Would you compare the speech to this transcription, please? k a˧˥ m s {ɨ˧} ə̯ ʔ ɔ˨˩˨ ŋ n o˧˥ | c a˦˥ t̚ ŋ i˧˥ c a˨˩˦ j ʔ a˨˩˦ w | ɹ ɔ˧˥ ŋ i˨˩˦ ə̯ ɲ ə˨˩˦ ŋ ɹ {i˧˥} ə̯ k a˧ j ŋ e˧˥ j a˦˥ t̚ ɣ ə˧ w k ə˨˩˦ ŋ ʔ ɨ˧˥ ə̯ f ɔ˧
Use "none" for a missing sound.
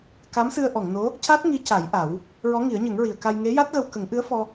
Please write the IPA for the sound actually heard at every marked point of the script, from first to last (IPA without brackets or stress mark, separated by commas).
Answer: ɨ˧, i˨˩˨